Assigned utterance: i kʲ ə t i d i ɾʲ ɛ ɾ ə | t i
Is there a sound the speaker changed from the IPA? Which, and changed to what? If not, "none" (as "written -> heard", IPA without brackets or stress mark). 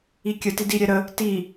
none